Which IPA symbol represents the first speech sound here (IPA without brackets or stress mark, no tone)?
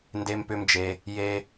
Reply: n